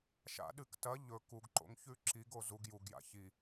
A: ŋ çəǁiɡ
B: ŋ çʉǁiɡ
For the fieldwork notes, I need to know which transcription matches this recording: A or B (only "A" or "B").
B